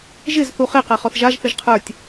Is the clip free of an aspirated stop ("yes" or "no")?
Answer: no